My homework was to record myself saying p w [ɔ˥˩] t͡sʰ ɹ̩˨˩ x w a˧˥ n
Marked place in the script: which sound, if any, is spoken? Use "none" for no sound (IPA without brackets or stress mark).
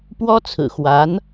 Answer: ɔ˥